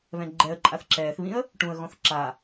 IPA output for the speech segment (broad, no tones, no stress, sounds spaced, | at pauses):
β ɛ̃ ɡ͡ǃ ɛ ə̯ ǃʼ a θ ǁ ɛː θ β ĩ ə̯ | ʈ ũ ə̯ ɣ ɔ̃ θ ǁ a